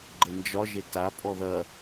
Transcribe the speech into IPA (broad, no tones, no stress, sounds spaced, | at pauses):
ɡ͡ǃ ə n d͡ʒ ɒ ʒ e t a pʼ ɔ ð ɐ